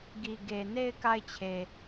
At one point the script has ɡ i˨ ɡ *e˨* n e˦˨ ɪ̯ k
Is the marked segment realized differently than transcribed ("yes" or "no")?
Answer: no